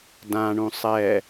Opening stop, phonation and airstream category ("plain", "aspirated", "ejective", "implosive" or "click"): plain